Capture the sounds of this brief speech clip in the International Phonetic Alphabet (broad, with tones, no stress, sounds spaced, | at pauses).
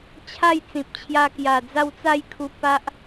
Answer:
t͡ɕʰ a˥˧ j t͡s ĩ˨ p̚ t͡ɕʰ j a˧ k j a˨˩ d͡z a˥˧ w t͡s a˥˧ j kʰ u˧ p a˦ ʔ